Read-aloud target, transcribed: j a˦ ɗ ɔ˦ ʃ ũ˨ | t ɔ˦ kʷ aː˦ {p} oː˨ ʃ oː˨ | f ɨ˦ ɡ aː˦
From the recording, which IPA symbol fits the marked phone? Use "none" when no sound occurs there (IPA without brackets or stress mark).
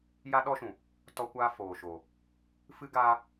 f